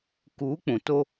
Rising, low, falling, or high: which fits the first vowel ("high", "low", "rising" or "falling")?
rising